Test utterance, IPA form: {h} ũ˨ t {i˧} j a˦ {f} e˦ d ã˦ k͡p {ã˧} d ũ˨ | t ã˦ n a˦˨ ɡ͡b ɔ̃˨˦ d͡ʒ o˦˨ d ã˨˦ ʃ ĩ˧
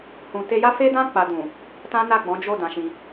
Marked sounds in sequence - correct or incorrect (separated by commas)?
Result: correct, incorrect, correct, incorrect